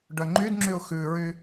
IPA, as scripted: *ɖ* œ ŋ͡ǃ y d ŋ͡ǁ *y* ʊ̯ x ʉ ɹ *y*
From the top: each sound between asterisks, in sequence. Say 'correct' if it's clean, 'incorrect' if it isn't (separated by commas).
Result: correct, correct, correct